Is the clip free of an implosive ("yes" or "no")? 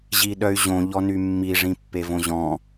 no